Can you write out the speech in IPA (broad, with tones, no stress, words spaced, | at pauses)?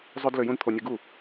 zˤø˥dlø˧ jũ˥dt̪ʰo˧nʲɯ˧ ɡu˥˩